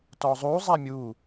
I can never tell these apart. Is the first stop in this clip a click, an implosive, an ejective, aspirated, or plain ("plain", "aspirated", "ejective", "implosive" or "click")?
plain